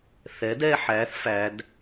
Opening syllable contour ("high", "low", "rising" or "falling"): rising